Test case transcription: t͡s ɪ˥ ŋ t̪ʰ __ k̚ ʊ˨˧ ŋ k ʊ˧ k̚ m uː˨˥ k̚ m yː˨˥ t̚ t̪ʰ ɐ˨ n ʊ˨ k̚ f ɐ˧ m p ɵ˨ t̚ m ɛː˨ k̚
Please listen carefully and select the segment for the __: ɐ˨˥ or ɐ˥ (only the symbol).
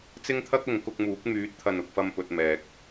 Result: ɐ˥